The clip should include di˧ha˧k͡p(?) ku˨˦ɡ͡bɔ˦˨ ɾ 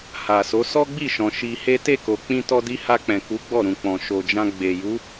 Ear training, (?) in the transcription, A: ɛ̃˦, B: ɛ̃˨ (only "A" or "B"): B